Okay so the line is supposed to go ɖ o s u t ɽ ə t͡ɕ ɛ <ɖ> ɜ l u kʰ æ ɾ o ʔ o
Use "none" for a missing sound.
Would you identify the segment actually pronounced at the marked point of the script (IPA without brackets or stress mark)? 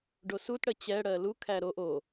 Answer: ɽ